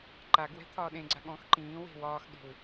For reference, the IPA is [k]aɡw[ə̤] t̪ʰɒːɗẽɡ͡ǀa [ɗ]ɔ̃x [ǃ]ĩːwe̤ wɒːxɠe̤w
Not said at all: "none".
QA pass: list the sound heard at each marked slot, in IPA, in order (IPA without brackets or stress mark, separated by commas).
ǃ, ɛ̤, ɠ, ǃ